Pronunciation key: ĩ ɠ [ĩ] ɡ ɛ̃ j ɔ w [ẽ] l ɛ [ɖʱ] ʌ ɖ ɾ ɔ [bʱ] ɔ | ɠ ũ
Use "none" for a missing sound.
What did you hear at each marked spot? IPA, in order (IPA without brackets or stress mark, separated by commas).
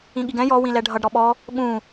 i, ĩ, ɖʱ, ɓ